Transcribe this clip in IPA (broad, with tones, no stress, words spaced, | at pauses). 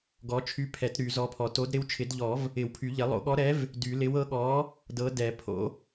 ɡɔ˨˥ t͡ʃʰy˨˥pʰɛ˨˩˦t ɾy˨˩˦zɔ˨˥pʰɔ˨˩˦t o˨˥d ɾɪ˨˥wt͡ʃʰɪ˨˩˦dʎɔ˨˩˦v | ɪ˨˩˦wpʰy˨˩˦ʎɪ˨˩˦ lˠo̰˨˥ɠɔ˨˥ɾɛ˨˥v | dy˨˩˦lɪ˨˥w ɤ˨˥ɠɔ˨˥ | dɤ˨˥ dɛ˨˩˦pʰo̰˨˥